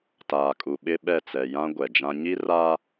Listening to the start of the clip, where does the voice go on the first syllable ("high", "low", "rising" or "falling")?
low